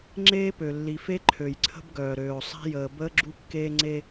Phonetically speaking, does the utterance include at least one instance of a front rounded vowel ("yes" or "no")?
yes